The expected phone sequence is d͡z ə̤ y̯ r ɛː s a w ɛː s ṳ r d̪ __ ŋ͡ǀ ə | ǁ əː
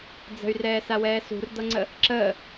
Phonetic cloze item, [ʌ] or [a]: ʌ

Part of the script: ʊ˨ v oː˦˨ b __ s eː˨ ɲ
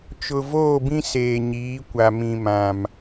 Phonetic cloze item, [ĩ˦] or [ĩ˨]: ĩ˦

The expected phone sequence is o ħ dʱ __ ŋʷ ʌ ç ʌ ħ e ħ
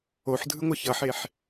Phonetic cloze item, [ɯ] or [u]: ɯ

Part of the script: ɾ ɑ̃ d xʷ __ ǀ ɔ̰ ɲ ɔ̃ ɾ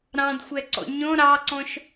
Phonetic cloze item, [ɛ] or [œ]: ɛ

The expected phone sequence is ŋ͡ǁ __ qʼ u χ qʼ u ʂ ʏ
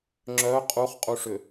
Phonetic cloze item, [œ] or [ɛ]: œ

